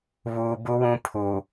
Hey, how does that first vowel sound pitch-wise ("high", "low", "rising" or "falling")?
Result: low